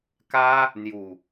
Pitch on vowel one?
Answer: high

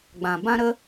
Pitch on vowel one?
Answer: low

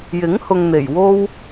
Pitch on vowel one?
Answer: rising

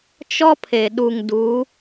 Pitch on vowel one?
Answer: high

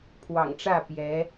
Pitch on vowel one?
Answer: low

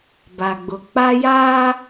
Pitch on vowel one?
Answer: low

